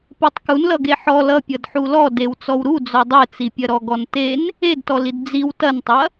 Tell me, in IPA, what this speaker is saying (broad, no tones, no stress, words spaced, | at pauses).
petˤkunlʌɡe ħɔl ʌ pʲʌdħulɔ dewt͡sɔwɾu d͡zɔdˤet͡sipʲɐ ɾɔɡɔnten | edtɔlid d͡ziw tɐntˤɐ